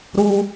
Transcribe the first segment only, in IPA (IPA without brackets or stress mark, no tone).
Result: ɾ